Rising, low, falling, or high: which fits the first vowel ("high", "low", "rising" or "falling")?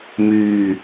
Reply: low